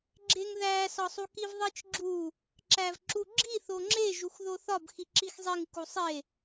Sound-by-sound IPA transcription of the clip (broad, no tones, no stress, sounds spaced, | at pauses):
ɡ͡ǁ e ŋ ð æ s ɒ sˤ u k i v ðˤ i t͡ʃ ɡ͡ǁ u | ǁ æ v ǁ u ɡ͡ǁ i θ o ŋ͡ǁ e ʒ u x ð o θ ɒ b x i ǁ i x zˤ i ŋ k u sˤ e